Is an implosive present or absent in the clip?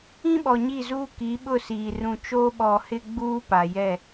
present